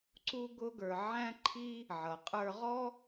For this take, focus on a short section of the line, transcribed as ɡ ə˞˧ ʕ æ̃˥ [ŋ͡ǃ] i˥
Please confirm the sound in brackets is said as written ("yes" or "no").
no